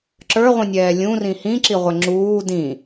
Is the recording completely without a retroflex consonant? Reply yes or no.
yes